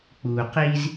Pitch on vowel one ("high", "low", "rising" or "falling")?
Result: low